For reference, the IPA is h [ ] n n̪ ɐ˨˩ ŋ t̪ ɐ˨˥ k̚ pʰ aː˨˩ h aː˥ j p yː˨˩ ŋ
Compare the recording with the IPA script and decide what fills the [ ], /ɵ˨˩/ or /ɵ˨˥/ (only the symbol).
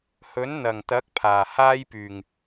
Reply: ɵ˨˥